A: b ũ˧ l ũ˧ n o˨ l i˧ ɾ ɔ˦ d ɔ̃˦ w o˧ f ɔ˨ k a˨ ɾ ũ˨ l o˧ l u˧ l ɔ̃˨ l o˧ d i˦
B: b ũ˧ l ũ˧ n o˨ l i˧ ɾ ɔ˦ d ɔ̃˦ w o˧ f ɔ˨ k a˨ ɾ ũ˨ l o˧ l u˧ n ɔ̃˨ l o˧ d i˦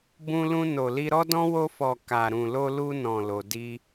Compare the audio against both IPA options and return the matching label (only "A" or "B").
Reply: B